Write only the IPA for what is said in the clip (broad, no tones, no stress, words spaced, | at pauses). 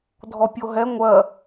dʱɔpʲoɦɛ ŋʷɜ